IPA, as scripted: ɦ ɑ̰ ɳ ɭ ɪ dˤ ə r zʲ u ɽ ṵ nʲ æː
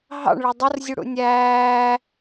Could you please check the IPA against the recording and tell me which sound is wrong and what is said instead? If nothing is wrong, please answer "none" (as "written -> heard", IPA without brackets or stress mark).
none